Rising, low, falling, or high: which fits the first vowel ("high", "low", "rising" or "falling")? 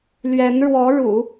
rising